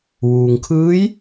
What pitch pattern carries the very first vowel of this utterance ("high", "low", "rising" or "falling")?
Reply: low